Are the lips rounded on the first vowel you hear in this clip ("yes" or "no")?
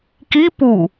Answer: no